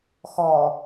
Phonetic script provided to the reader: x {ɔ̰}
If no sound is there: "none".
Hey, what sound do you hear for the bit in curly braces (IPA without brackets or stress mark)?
ɔ